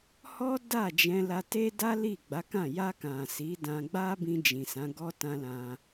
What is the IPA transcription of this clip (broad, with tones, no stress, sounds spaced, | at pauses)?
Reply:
h ɔ˦ d a˦˨ d͡ʒ ɛ̃˧ l a˧ t e˦ d a˦ l i˦˨ ɡ͡b a˨˦ k ã˦˨ j a˧ k ã˨ s i˨˦ d ã˧ ɡ͡b a˦ b ĩ˧ d͡ʒ ĩ˨ s ã˨˦ ɡ ɔ˦ t ã˧ l ã˧